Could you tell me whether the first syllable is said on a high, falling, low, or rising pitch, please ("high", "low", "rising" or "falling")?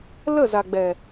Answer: falling